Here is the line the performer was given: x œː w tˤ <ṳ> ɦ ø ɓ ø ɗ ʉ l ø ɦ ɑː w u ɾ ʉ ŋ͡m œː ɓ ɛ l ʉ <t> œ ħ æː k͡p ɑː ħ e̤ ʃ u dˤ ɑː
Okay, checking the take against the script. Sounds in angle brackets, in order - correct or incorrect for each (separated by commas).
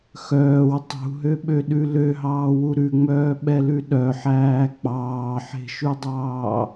correct, incorrect